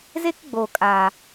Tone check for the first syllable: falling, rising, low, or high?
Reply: high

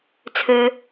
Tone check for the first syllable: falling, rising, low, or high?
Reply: low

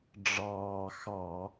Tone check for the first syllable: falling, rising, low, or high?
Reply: low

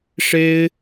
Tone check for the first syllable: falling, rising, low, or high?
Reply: high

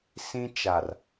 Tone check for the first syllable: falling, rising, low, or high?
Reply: high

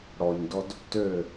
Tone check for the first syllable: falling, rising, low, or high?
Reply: low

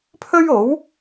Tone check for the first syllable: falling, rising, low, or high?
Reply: high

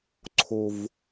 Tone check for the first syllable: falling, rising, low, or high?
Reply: low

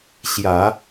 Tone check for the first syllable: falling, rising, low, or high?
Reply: low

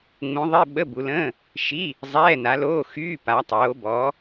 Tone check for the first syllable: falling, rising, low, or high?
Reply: rising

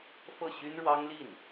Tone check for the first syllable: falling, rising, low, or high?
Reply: falling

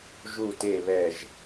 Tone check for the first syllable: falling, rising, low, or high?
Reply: low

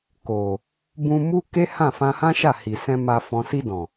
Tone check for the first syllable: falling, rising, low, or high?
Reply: low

